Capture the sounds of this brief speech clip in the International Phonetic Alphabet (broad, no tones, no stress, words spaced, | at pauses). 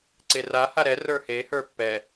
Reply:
ǀera haɾɛ rə˞he hə˞pːɛ